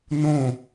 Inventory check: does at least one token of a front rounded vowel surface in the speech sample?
no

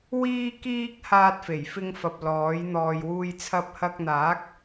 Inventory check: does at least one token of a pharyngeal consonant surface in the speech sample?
no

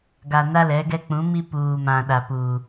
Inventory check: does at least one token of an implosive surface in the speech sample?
yes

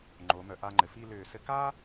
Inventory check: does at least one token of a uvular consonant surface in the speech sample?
no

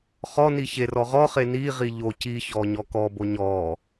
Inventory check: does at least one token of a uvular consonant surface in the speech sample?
yes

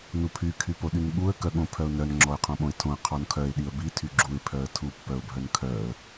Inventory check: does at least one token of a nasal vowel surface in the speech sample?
yes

